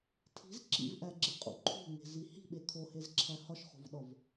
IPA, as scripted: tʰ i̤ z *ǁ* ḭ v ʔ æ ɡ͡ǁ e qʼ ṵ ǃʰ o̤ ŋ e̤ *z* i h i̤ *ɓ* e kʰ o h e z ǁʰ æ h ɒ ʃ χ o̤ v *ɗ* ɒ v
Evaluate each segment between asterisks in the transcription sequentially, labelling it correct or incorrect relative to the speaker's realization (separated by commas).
correct, correct, correct, correct